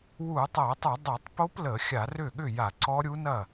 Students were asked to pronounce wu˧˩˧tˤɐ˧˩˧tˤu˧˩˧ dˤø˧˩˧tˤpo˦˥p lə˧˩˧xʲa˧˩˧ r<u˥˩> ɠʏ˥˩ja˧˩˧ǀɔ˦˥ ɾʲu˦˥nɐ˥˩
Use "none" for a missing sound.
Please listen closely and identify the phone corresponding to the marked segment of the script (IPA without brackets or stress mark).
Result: ʏ˥˩